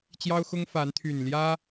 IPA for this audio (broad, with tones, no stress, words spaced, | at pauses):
t͡ɕjɑ˦ʊ̯xʊ˦ŋfa˨˦n t̪ʰy˨˩nljä˦